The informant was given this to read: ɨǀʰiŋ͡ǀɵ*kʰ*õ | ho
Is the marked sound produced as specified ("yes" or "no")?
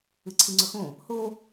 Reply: no